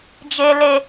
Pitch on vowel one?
low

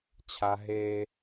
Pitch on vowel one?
low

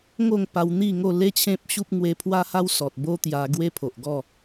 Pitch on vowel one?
falling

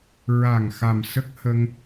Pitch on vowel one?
low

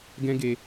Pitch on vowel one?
high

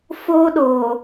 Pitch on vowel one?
high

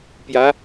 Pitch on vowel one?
rising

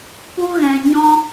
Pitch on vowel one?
high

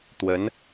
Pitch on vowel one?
rising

